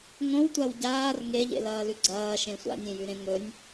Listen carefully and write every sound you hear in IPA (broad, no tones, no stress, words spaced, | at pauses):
ŋõwtʷaw ɟaːr ŋeʎḛlɐːlʉ ɡ͡ǀɐːʃẽ sʷa̰nʲẽjʉɾẽ ŋɵnʲ